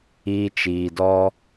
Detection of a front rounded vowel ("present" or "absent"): absent